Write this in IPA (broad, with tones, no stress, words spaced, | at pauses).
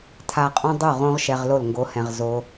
tʰa˧qʼõ˦dˤu˦˨ ʁõ˧ʁʃɛ˨ʁ lo˦˨lŋɡo˧hɛ̃˨ʁ zo˧